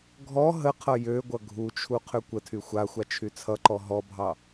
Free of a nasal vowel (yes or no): yes